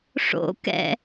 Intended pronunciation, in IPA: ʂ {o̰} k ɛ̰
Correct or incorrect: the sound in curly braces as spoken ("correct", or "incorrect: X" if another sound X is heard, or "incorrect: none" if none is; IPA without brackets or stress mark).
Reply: correct